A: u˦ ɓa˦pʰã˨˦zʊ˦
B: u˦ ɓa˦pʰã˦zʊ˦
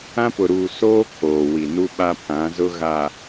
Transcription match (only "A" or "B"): A